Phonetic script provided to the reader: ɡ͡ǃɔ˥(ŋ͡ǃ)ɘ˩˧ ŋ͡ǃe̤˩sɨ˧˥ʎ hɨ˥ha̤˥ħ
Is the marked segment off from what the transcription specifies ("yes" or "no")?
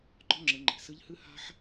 yes